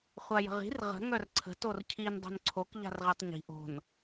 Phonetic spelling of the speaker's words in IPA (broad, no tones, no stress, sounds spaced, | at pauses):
χʷ a j ə̤ ʁ i̤ r ʁ ə̤ ŋ œ r ǀʰ ə̤ t o r cʰ i n dˤ o̤ n ǀʰ o k ʎ a̤ r ʁ e tˤ ɲ i̤ ʔ o̤ n